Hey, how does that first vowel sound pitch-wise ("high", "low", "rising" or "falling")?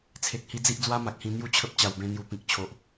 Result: low